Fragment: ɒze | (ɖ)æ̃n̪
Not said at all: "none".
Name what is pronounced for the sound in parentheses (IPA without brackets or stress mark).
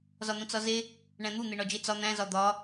ɳ